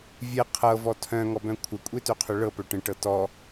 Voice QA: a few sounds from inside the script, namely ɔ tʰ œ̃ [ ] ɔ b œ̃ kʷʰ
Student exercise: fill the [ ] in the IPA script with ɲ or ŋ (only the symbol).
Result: ŋ